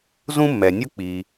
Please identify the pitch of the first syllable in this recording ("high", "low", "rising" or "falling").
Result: high